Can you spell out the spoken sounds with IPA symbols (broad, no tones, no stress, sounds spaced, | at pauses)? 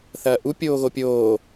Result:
θ ɐː ʔ u pʲ oː ɣ o pʲ oː